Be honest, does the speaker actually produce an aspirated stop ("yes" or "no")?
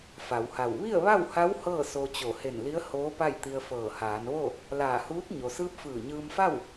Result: no